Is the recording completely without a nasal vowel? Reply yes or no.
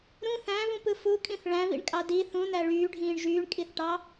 no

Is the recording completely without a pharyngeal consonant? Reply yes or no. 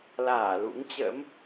yes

